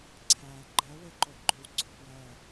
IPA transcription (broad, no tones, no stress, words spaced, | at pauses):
ǀʰæ ɡ͡ǃɜweǃo ɡ͡ǃʏwɡ͡ǀo pjɜ